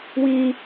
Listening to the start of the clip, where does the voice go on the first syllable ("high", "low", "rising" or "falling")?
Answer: high